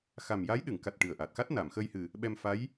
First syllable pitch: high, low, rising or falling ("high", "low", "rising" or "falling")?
low